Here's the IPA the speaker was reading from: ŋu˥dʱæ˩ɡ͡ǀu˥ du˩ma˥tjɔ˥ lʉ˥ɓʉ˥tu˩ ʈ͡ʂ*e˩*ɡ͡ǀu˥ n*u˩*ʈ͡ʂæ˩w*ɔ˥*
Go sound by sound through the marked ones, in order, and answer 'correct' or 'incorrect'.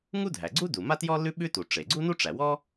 correct, incorrect, correct

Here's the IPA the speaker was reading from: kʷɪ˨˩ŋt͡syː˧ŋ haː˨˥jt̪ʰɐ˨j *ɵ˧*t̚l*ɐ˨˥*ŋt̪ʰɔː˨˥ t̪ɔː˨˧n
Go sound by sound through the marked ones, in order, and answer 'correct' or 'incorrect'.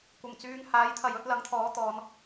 incorrect, correct

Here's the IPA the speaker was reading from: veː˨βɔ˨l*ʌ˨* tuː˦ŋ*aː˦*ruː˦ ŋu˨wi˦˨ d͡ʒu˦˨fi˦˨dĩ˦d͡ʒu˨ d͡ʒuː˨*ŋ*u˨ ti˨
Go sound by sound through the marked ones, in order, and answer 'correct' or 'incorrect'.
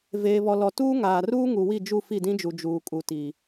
incorrect, incorrect, incorrect

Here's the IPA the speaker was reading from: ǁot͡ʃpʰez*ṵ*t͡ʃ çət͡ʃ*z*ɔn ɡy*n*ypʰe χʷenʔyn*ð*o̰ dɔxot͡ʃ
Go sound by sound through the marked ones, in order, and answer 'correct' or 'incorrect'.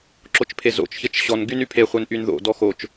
incorrect, incorrect, correct, correct

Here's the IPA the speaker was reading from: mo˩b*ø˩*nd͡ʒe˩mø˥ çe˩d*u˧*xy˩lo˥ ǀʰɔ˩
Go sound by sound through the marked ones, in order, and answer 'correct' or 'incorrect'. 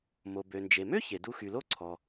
correct, correct

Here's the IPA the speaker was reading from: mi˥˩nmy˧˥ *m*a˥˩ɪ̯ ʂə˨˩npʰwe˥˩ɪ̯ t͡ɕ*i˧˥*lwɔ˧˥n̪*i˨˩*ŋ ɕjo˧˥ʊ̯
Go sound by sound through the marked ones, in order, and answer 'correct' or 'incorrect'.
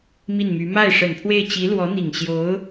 correct, correct, correct

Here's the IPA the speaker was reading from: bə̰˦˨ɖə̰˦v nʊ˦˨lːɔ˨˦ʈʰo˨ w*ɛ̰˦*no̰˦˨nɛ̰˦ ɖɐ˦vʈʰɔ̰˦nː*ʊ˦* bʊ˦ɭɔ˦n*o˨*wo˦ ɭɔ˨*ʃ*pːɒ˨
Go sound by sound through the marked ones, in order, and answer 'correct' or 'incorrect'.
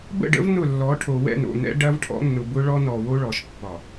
incorrect, incorrect, incorrect, correct

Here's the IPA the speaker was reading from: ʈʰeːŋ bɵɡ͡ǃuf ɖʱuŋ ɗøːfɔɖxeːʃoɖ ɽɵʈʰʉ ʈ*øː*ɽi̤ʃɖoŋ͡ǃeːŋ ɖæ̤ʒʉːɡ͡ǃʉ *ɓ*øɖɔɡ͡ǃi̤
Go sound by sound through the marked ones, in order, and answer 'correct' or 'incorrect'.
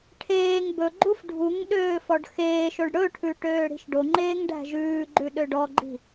correct, incorrect

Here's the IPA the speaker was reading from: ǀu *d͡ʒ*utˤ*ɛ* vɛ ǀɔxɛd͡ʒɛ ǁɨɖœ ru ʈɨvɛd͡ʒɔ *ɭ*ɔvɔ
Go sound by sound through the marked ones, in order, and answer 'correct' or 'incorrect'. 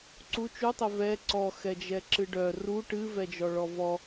incorrect, correct, correct

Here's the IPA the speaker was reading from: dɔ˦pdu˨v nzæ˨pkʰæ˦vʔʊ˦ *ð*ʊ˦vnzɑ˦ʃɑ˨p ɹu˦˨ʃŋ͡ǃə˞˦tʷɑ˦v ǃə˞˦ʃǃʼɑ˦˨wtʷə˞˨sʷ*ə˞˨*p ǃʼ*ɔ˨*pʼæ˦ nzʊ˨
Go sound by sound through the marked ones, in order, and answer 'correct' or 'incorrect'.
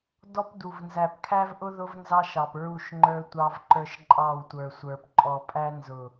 correct, correct, correct

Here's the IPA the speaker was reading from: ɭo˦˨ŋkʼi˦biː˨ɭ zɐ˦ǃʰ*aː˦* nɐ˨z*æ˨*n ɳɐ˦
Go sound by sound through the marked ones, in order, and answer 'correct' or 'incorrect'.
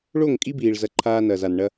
correct, incorrect

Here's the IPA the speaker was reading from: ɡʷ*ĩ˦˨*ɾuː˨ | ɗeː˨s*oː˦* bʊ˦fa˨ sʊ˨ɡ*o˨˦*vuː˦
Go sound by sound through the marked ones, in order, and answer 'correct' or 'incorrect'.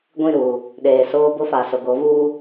correct, correct, correct

